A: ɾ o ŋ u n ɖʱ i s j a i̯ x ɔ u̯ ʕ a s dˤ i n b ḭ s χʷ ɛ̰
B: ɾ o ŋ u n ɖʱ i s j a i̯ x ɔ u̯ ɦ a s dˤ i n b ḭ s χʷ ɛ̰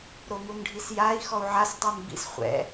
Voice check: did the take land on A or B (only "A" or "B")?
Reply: A